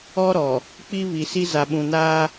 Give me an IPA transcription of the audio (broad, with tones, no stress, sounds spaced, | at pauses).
ɔ˦ ɾ ɔ˨ | k͡p i˦ β i˨ s i˦ z a˨ ɓ ũ˨ n aː˦